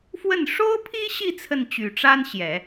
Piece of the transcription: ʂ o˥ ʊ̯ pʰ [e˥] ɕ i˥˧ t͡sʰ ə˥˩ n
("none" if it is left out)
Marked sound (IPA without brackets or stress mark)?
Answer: i˥